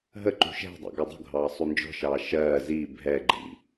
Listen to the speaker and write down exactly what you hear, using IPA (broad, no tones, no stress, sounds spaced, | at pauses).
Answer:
ɦ ə ǃ ṳ ʃ ɛ̤ dˤ ṵ ɡ ɔ dˤ ṳ ɡʱ ɑː sˤ u n d͡ʒ ɔ̤ ʃ ɑː ʃ ɜː z iː bʱ ɛ ɡ͡ǃ ḭ